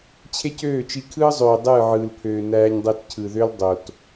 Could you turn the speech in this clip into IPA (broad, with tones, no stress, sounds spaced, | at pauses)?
t͡ɕʰ e˦ c øː˦˨ t͡ʃ i˧ kʰ ɯː˦ zˤ øː˨ dˤ ɯː˦˨ ʕ ɯː˨ l pʰ øː˨ n æː˧ ɲ dˤ e˧ t cʰ ɯ˨ ð ø˦ l dˤ o˨ t